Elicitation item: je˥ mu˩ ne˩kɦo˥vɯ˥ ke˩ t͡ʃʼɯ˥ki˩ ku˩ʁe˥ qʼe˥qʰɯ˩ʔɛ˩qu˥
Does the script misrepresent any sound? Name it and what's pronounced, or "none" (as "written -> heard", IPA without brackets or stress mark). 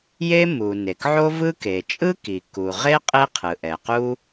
ɦ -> ʕ